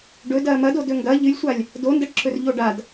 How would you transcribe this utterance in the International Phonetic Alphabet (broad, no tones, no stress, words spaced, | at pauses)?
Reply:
ɖɵdɐː mɐdo dɵŋɡɐ ʎɨlʲsʷalʲ | dondɐʈǁɵr ʎoɖad